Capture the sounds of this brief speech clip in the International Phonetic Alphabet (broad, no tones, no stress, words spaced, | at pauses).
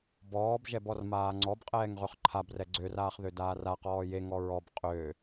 bɔːbʒɛbɔrmaː ŋ͡ǀɔbqʼɛːŋʁøχ ǃʰabrɛ ɡ͡ǀøraːχðødaːr aqɔː jeŋɔ ɹɔb qʼø